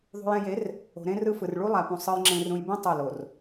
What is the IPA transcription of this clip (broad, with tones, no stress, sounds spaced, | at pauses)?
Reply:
ðˤ ṳ˨ j ɛ̃˨ j e˨˦ r | o̤˨ ɾ ẽ˦ r ɯ˦ f ɯ˨ r ɭ u˦ lˠ a˨ p ũ˨ sˤ ɯ˨ j ŋ͡ǁ ẽ˨ r ũ˨ j b ẽ˦ tˤ u˦˨ l o˨ r